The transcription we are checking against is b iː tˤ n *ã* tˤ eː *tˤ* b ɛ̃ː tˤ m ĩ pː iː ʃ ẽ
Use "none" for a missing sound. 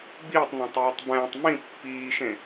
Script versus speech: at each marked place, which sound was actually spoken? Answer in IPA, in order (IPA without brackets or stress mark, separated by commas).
ã, tˤ